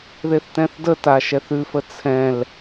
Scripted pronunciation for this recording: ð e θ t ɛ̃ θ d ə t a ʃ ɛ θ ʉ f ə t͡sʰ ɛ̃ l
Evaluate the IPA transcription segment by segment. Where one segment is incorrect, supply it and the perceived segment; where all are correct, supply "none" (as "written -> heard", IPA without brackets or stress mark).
none